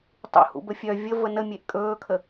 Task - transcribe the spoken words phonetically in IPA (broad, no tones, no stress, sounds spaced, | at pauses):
tˤ ṵ h ṵ b ə fʲ œ vʲ ə v ə n ə mʲ e ʔ kʼ ɵː kʰ ə